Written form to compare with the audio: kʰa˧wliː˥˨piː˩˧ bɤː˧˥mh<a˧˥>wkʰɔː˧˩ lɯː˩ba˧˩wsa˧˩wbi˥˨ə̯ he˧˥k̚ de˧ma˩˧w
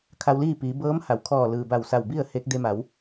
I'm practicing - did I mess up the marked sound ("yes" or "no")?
yes